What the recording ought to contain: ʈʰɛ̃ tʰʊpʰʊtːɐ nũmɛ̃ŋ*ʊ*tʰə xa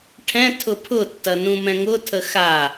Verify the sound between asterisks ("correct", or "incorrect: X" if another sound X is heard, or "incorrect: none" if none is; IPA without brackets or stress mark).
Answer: correct